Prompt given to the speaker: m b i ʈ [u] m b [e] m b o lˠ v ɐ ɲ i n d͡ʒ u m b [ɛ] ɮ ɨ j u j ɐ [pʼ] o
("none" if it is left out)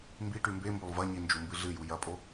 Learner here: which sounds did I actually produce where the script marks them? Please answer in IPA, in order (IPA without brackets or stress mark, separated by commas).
ʉ, e, ɨ, pʼ